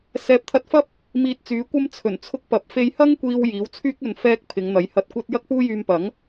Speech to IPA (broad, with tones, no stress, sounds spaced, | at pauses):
s ɛː˨˥ p̚ t̪ʰ ɐ˧ t̚ f ɐ˥ p̚ | m iː˧ t̚ t͡s yː˨˥ kʷ ɐ˥ m t͡sʰ ɵ˨˩ n t͡sʰ ʊ˧ k̚ p ɐ˨ p̚ f e˧ j h ɐ˥ ŋ kʷ iː˧ w j iː˨˥ w t͡sʰ yː˥ k̚ ɵ˧ n f ɛː˥ k̚ pʰ ɪ˨˧ ŋ n̪ ɐ˨˥ j h ɐ˧ t̚ kʷ ɐ˥ t̚ j ɐ˥ k̚ p uː˥ j yː˧ m p ɐ˨˥ ŋ